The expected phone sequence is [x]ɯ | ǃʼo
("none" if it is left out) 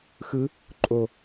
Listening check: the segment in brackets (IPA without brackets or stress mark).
x